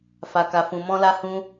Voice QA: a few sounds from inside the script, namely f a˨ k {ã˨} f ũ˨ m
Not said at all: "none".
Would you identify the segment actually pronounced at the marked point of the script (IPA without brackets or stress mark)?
a˨